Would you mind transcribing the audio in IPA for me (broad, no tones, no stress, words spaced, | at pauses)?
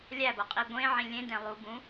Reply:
lʲæboqʼi ɡʷẽʕĩ lʲẽdẽ lˠubũ